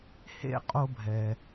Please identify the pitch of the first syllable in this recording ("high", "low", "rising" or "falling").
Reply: high